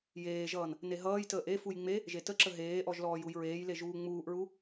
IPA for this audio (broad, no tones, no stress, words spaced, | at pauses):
jeːʒʌːn | neɦʌːjtəːʔ efuj ŋ͡me | ʒetəǁə ɦeːʔɔʒ lɔːjujɹeːjle ʒuːŋ͡muːʔɹu